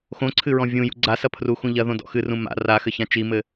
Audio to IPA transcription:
x õ ǀʰ ɨ ɹ ɔ̃ vʲ ũ j ṵ ɡ͡ǀ a s ɐ pʰ r u x ũ ʎ ɐ ð õ d ɔ̰ x ɨ r ũ m a̰ r a x ɘ ç ã t͡ʃ i m ɘ

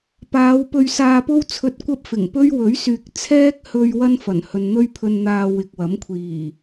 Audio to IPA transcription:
p aː˨˧ w p ɵ˧ ɥ s aː˧ p o˥ w t͡sʰ ɵ˧ t̚ kʷ ɐ˥ p̚ f ɪ˨˩ ŋ p ɵ˥ ɥ w ɵ˨˥ ɥ s yː˨ k̚ t͡sʰ ɛː˥ k̚ h ɵ˧ ɥ w ɐ˥ n f ɐ˨˩ n h ɵ˨ n n̪ ɵ˥ ɥ pʰ ɵ˧ n n̪ aː˧ w ɪ˨ k̚ w ɐ˨˥ m kʷʰ iː˨˩

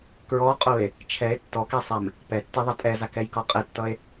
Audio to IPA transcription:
k ɹ ɔ qʼ u e̯ | t͡ʃʰ ɛ e̯ tː ɔ k ɛ sˤ ɛ m | p ɛ tː i ðˤ ʌ tʼ ɛ z a k ɛ j k ɔ qʼ e tː ʌ e̯

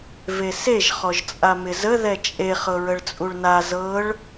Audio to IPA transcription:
v e s e ʒ χ ɔ ʒ t͡sʼ a m ɪ z ə ð ɛ t͡ʃʼ e χ ɤ ɹ ə ɭ t͡sʼ u ɭ n a z ɤ ɭ

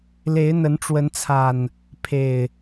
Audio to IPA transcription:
l e˨˦ ɪ̯ n̪ ə˨˦ n ʈ͡ʂ w ə˨˦ n t͡sʰ a˨˩ n | pʰ e˨˩ ɪ̯

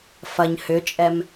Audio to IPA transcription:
f ɐ ɲ h ʏ t͡ʃʼ ɛ m

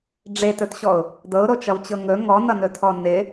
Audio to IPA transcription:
ɖ͡ʐ e t ɵ t ɕ ɔ ʊ̯ | d ɤ ʊ̯ ɾ o t͡ʃ ʌ v t͡ɕ ɤ ŋ ɵ ŋ ɔ n ʌ n ɵ tʰ ɔ n ɪ

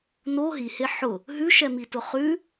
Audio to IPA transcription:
n o ɦ i h e ħ ʊ | ɦ ʉ ʃ ɛ m i t ʊ χ ʉ

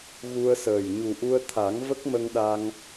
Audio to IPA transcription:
ɣ u˧ ə̯ s əː˨˩ j ɲ u˨˩ ʔ u˧ ə̯ t̪ʰ a˨˩˦ ŋ v ə˦˥ k̚ m ə˧ ŋ ɗ a˧ ŋ

